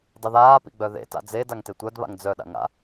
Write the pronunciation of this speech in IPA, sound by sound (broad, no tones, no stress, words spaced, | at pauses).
dˤiðaːpḭ ɡ͡bœðḛta̰ d͡zedaŋ tetʷœdβa̰ŋ d͡zœɗa̰ ŋa̰